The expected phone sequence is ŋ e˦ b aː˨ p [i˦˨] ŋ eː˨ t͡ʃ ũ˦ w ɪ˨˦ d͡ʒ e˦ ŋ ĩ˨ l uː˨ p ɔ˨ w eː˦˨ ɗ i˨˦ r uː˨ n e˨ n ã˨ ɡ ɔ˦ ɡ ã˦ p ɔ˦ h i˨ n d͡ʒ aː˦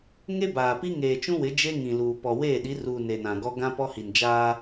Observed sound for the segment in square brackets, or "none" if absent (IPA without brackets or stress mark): i˦